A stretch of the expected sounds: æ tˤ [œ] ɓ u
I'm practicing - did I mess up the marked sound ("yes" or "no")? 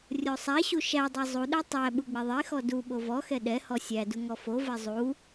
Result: yes